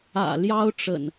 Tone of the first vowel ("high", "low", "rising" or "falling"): low